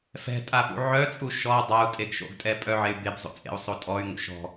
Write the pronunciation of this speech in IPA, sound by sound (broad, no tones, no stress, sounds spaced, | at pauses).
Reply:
f ɛ̤ tʼ a p ṵ ʕ œ t͡sʼ u ʃ ɔ dˤ a u̯ tʼ e ɡ ʃ o̰ ɡ tʼ ɛ pʼ œ ʕ e y̯ b e b zˤ o̰ t͡sʼ ḛ u̯ sˤ o tʼ ɔ y̯ ŋ ṵ ʃ ɔ̤